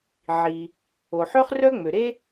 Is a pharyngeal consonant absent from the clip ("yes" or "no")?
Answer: no